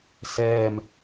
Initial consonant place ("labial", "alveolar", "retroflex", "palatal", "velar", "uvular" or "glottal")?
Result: alveolar